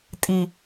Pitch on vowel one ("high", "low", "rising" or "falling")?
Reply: low